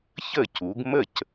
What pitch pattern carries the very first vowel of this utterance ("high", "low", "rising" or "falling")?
falling